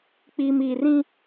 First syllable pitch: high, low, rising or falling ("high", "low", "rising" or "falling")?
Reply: low